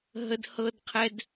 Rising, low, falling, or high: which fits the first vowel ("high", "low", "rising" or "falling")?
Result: high